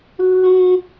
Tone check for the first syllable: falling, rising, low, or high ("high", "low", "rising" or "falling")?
high